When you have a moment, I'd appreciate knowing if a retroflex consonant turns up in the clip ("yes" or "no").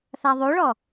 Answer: yes